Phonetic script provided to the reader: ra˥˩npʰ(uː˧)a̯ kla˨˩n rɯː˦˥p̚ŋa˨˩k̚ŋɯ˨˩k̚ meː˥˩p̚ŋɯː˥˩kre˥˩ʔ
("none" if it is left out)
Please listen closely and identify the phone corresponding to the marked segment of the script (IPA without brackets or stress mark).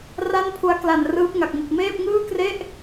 u˧